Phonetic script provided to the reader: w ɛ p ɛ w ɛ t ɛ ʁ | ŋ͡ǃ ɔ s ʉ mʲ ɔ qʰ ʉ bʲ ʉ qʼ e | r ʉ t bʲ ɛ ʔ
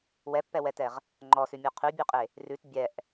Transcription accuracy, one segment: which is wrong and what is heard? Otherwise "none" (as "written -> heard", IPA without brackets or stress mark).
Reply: p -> pː